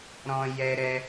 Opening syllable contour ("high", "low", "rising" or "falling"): high